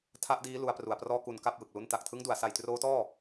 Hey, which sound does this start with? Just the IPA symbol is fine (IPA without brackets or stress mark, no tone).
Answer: tʰ